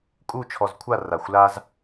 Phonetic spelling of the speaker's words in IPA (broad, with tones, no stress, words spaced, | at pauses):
kʼu˥˧t͡ʃʰɔ˧zkʷʰa˥˧ ra˧˩xʷla˥z